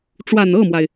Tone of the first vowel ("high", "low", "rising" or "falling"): low